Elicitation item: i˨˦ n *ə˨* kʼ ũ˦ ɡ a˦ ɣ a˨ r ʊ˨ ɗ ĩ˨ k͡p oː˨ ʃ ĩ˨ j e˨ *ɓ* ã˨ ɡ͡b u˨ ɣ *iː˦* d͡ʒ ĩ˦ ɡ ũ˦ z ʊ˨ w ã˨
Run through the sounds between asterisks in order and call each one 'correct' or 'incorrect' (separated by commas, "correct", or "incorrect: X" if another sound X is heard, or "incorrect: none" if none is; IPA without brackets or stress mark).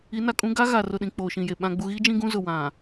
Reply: incorrect: a˨, correct, correct